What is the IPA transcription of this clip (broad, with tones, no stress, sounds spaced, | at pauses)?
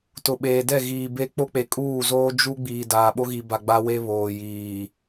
t ʊ˨ ɓ eː˨ d ɛ˦˨ ɣ iː˨ b e˦ k͡p o˦ k͡p e˨˦ kʼ uː˦˨ z oː˦ d͡ʒ u˦ ɡ͡b iː˨ d aː˨ ɓ o˦ ɣ i˨ b a˨ ɡ͡b a˦ w e˦ β oː˨ j iː˨